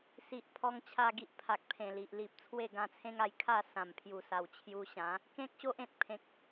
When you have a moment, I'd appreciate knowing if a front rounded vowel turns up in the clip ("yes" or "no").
no